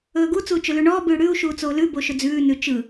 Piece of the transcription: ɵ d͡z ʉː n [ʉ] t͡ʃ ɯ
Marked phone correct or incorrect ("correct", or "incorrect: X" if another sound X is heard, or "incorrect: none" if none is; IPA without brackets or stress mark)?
correct